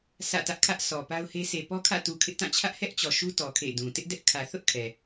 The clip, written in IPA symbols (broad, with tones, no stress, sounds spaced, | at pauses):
sʰ ä̰˦˨ t ä˦ ʔ kʰ ä˦ ʔ sʰ ɔ˨ p a˦ ʊ̯ h e˦ s e˨ p ɔ˦ kʰ ä̰˦˨ t u˨ kʰ ɪ˦ ʔ t ã˦˨ t͡ɕʰ ä˦ ʔ h ɛ˦ ʔ t͡ɕ ɔ˨ ʃ u˦ t ɔ˨ kʰ ḛ˦˨ d ũ˨ t ɪ˦ ʔ d ɛ˦ ʔ kʰ ä˨ θ ʊ˦ ʔ kʰ ɛ˨